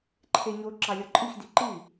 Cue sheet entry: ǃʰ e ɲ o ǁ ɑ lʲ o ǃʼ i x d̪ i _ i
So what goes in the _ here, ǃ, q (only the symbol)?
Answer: ǃ